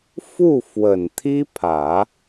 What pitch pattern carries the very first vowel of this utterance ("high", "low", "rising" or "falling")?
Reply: falling